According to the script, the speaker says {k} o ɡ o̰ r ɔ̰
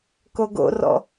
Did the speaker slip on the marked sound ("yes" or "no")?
no